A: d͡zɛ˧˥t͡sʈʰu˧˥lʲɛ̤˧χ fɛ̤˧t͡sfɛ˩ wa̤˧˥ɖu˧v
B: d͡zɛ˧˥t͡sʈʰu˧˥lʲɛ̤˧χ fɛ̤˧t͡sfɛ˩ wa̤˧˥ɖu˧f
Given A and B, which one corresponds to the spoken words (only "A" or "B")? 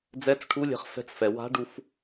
B